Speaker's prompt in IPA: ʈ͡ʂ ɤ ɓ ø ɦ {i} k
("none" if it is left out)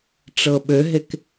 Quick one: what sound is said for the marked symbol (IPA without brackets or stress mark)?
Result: e